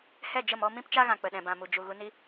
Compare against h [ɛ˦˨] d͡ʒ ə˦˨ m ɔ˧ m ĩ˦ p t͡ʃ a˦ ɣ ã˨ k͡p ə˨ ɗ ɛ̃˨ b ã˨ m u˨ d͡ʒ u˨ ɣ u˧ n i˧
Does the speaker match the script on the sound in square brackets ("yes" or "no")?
yes